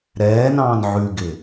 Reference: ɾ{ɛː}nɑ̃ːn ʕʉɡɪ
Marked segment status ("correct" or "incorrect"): correct